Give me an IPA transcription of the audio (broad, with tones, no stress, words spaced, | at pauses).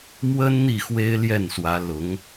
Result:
mwə˥n n̪i˥˩xwe˥ɪ̯ljɛ˥˩nswä˧˥ lʊ˧˥ŋ